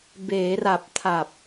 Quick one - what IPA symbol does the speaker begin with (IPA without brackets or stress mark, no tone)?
b